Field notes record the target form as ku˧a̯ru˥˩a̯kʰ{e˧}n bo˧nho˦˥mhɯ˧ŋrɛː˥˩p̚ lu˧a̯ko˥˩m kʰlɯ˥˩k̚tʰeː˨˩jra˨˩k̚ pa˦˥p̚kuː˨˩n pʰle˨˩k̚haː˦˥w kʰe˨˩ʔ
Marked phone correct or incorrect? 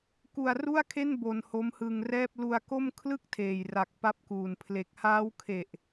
incorrect